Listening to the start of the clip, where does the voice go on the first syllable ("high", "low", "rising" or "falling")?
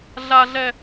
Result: low